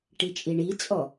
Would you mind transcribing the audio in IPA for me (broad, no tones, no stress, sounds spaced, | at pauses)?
ʈ i t͡ʃʼ i ɳ i t͡sʼ ɔ